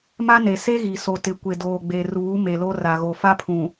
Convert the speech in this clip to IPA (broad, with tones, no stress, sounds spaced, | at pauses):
m a˦ n e˨ s e˦ ɣ i˨ s o˨ t ɪ˨ kʷ e˨ d oː˨ ɡ͡b e˨ r uː˨˦ m e˨ l o˦ r a˨ ɣ o˨ f a˦ pʰ ũ˨